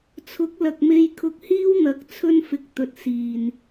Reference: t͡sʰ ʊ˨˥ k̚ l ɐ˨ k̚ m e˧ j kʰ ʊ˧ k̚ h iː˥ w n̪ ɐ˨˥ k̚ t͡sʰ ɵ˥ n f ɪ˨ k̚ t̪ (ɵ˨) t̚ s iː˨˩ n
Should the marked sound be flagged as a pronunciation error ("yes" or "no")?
no